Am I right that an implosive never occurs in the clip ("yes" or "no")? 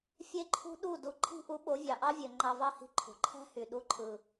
no